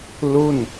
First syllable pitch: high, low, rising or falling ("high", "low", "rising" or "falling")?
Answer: falling